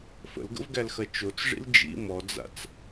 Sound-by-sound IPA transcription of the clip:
f ə̰ l ɡ ə̰ v ɡ æ l x ɐ t͡ʃ o t͡s ʐ ḭ l d͡ʒ ḭ m ɔ d͡z a̰ t͡s

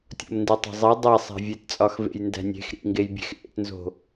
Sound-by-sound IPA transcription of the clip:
tʲ o̰ m n d i tˤ e̤ zˤ i dˤ e sˤ æ̤ vʲ e t t͡sʼ ɒ x v ḛ j n d æ̤ nʲ e̤ x ɾ ḭ ŋ ɡ e j bʲ e̤ x ʔ ḛ t n z o̤

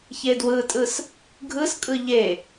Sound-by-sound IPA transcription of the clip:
ç e d w ɯ tʼ ɯ s | ɡʱ ɯ s kʼ ɯ ʎ e

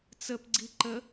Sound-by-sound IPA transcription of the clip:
t͡s ə p ɡ͡ǀ i ǃ ə

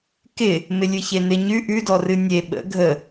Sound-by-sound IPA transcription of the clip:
k ɪ | m ɪ lʲ ɨ ç e n ɪ ɲ ʉ ʔ ʉ d ɔ r ɨ nʲ e ɓ ə̰ ɡʱ ə

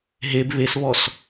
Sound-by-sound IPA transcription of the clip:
ɦ e b β e s β ɔ s

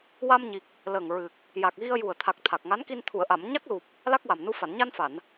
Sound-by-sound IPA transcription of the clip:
w a˧ m ɲ i˨˩ k̚ | l ə˨˩ ŋ ɹ ɨ˨˩ k̚ | j a˨˩ k̚ ɣ i˧ ə̯ j u˨˩ ə̯ t̪ʰ a˨˩ k̚ t̪ʰ a˨˩ k̚ ŋ a˧˥ n k i˧ n t̪ʰ u˨˩˨ ə̯ ʔ a˨˩˨ m ɲ a˦˥ k̚ l u˨˩ p̚ | l a˦˥ k̚ w a˨˩ m n u˧ f a˨˩˨ n ɲ a˧ n f a˨˩˨ n

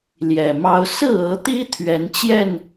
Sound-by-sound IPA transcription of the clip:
l j ɛ˨˩ m ɑ˦ ʊ̯ s ɹ̩˥˨ ɤ˨˦ t̪ i˦ t̪ʰ ɥ ɛ˨˦ n t͡ɕ j ɛ˥˨ n

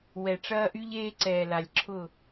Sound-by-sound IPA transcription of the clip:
w ɛ˨ ʈ͡ʂ ɐː˦ ʔ y˦ ʎ eː˦ ǀ ɛː˨ l a˨ lʲ ǁʰ ʊ˦˨

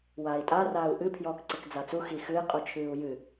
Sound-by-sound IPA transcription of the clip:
w aː i̯ tʼ a r aː u̯ ʔ ɨ pʰ j ɔː k ǀ ɨ k d͡z a t͡s u x i x ɨ i̯ qʼ u t͡ʃʰ ɨː u̯ j ɨ

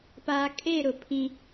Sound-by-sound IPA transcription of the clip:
p aː˨ kʼ e˦˨ ɾ ʊ˨ pʰ ĩ˦

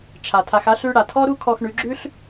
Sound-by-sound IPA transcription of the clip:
t͡ʃʰ a˨ tʰ a˧ x a˦ ɬ ʉ˦ ɽ a˨ tʰ ɔ˦ ɾ u˦ kʰ ɔ˧ x ɳ ʉ˨˦ ɡ͡ǁ ʉ˦ ɬ

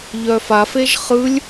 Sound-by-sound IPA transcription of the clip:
ʎ œ f a f e ʒ χ ɯ lʲ

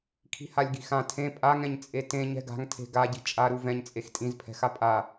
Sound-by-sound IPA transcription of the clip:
kʰ i̤ h a lʲ ɡ i̤ x ã tʰ ẽ pʼ a ŋ ɛ̃ ɲ t͡sʼ e t ẽ ɲ ɛ̤ ɡ a̤ ŋ tʰ e̤ ɡ a ɟ i̤ t͡ʃʼ a ɾ u v ɛ̃ ɲ t͡sʼ e x tʼ ĩ z pʰ ɛ̤ x a pʼ a

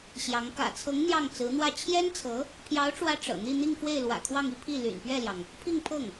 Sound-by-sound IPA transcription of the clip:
ɕ j ɑ˧˥ ŋ k ä̰˨˩ t͡sʰ ɤ˧˥ ŋ n̪ j ɑ˥˩ ŋ t͡s ɹ̩˧˥ n̪ w ä˥˩ t͡ɕʰ j ɛ˥ n t͡sʰ ɤ˧˥ | pʰ j ɑ˧˥ ʊ̯ ʈ͡ʂ w ä˧˥ ʈ͡ʂ ɤ̰˨˩ n̪ i˥˧ n̪ i˥˧ ŋ f w e˥˩ ɪ̯ l w ä̰˨˩ kʰ w ɑ˥˧ ŋ i˥˧ pʰ i˥˩ l y̰˨˩ n p ɥ ɛ˥˩ l j ɑ˩ ŋ | pʰ i˥˧ ŋ pʰ ɤ˥˩ ŋ

